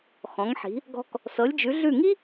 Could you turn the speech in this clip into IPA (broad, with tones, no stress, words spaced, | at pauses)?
xɔ̃˩˧ŋħi̤˩˧ | ɡɔ̤˧k | sɤ˩˧lʲd͡ʒʉ˩˧ɮʉ˧˩ŋi˥